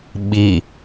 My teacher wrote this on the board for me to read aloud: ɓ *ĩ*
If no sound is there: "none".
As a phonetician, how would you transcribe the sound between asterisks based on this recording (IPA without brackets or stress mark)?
i